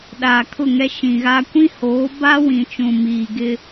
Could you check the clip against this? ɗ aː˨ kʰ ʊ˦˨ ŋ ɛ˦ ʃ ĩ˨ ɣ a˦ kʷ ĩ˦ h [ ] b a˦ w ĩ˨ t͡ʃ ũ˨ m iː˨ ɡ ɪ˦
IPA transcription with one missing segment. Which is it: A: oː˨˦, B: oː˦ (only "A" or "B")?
A